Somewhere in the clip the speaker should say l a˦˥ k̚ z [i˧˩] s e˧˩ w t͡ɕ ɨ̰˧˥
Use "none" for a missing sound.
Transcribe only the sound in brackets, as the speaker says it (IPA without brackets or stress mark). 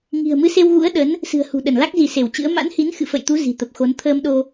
i˧˩